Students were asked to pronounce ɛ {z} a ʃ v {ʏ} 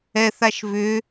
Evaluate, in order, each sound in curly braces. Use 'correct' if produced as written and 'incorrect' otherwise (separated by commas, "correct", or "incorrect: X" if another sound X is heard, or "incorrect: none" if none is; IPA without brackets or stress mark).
incorrect: θ, correct